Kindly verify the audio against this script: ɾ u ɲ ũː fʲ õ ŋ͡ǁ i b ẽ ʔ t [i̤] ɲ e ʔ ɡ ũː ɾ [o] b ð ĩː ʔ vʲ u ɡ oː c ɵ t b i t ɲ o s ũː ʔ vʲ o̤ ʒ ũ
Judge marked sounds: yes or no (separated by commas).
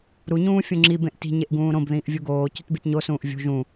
yes, no